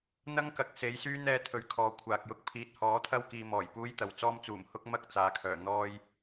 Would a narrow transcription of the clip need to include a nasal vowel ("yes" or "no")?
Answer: no